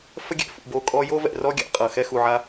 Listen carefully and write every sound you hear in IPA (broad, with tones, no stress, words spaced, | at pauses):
fə˦ɡʲɛ̰˨ fṵ˩ bo˨kʼɔ˦jo˥ vɛ̰˨rɔ˥ ɡʲa̰˦qʼɤ˩ xɛ˦xu˨ʕa˦